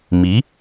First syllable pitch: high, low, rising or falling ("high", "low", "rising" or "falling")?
rising